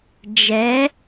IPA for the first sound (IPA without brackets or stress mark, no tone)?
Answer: d͡ʒ